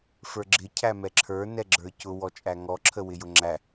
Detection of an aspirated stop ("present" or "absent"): present